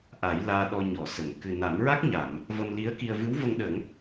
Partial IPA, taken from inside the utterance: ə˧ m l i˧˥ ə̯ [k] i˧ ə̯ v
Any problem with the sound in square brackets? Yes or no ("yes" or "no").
no